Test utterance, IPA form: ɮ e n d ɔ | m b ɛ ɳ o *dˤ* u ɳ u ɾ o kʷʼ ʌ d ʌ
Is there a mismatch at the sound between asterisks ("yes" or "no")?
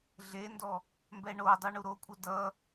no